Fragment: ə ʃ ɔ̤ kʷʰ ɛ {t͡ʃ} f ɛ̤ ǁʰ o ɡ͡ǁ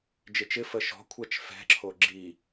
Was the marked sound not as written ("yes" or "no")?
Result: no